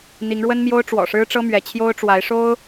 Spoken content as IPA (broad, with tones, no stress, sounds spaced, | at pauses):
n̪ i˨˦ ŋ ɻ w ə˦ n m j o˦ ʊ̯ ʈ͡ʂ w ɔ̰˨˩ ʂ ɻ̩˦ ʈ͡ʂ ɤ˦ m ɥ ɛ˨˦ t͡ɕʰ j o˦ ʊ̯ ʈ͡ʂ w a˨˦ ɪ̯ ʂ o˦ ʊ̯